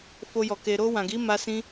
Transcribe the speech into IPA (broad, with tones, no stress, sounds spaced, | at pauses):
f o˧ j ɔ˨ k e˨ ɾ o˧ w ã˨ ɡ i˨˦ m a˧ s ĩ˧